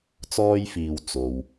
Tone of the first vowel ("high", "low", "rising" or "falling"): high